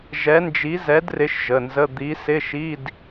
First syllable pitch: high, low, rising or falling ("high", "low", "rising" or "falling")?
rising